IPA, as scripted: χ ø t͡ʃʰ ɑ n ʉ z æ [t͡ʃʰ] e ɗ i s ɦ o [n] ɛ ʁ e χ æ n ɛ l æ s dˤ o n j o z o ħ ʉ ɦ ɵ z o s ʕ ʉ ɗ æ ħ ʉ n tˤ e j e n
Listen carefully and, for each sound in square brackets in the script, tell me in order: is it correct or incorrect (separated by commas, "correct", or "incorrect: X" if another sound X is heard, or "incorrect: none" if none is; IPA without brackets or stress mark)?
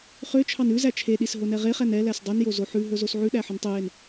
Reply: correct, correct